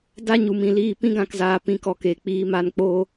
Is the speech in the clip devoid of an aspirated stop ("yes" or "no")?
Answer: yes